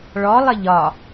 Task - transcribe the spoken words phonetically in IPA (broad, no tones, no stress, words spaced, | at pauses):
ɭɔlˠə ʎɒ